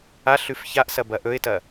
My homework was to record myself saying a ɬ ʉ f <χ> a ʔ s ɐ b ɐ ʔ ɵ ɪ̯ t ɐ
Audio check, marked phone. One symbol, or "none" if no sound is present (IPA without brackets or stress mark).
ç